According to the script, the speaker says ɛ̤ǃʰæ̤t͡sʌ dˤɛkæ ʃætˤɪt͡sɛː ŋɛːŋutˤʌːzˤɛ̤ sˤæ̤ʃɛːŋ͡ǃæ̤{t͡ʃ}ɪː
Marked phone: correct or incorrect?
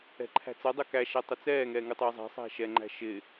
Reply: incorrect